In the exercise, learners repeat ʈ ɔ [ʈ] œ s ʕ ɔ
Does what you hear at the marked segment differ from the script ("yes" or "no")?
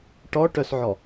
no